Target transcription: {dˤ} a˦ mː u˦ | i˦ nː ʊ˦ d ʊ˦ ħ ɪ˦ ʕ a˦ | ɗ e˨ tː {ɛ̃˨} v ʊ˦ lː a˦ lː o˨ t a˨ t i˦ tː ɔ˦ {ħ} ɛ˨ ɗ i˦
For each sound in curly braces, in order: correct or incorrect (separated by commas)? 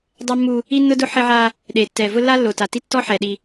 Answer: correct, incorrect, correct